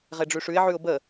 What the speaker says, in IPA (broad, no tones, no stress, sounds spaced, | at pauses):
ʁ e ɖ͡ʐ ʉ ʂ ʉ ɪ̯ ʕ ʉ ʊ̯ b ə